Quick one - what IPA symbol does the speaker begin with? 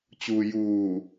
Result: t͡ɕ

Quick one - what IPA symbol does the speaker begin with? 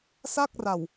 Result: s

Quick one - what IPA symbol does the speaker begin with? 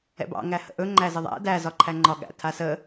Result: ɛ̰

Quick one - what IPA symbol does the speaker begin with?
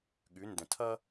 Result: ɠ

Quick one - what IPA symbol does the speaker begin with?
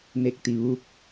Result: n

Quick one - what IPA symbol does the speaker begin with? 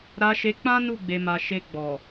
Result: ɾ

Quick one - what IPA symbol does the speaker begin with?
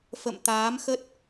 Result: f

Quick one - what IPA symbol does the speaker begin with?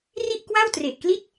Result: r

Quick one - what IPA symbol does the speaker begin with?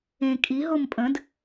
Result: ẽ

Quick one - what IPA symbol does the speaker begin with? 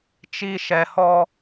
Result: t͡ʃ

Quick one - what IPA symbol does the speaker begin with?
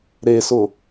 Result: ɾ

